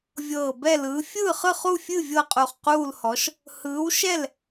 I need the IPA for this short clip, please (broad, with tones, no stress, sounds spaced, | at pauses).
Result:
vʲ ɤː˧˩ b ɛ˥˨ l ɯː˨˥ fʲ ɯː˥˨ χ ɯ˥˨ χ u˥˨ fʲ ɨ˥˨ vʲ ɤ˥˨ qʼ u˧˩ χ q uː˥˨ l h ɔ˨˥ ʃ | h ɯː˨˥ w ʃ ɛ˥˨ l